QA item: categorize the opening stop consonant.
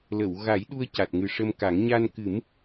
implosive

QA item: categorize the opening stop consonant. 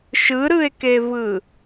plain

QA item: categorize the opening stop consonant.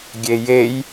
plain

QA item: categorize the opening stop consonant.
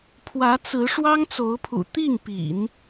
aspirated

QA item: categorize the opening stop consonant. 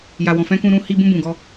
plain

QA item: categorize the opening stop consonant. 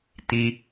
plain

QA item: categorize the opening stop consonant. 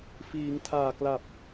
aspirated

